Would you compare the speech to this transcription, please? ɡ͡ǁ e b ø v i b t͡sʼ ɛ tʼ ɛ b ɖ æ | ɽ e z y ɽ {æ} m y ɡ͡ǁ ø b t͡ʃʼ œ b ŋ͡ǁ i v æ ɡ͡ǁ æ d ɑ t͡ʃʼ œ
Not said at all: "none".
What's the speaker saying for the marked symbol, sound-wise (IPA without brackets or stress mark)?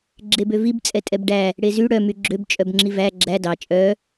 œ